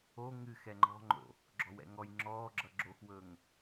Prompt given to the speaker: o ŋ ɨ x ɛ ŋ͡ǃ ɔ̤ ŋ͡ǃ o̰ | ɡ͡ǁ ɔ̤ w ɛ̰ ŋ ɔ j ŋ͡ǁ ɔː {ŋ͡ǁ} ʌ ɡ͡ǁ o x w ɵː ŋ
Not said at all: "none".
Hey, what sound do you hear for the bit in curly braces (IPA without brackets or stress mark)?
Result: ɡ͡ǁ